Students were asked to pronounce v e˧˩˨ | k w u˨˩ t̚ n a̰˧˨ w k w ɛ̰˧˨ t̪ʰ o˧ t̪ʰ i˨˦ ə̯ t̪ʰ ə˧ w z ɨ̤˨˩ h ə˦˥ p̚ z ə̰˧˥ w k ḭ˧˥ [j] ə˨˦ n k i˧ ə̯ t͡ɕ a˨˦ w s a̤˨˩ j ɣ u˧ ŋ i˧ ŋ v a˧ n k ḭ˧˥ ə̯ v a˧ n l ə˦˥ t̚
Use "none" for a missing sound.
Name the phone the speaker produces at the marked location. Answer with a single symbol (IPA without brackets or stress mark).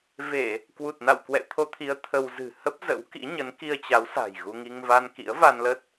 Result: ɲ